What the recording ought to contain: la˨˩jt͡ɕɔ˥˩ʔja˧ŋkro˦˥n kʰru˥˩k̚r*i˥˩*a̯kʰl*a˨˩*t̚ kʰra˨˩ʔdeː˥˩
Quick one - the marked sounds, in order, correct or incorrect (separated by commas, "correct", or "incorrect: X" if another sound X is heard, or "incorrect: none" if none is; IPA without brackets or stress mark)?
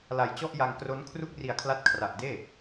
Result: incorrect: i˨˩, incorrect: a˦˥